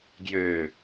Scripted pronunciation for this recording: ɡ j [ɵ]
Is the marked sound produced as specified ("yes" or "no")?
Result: no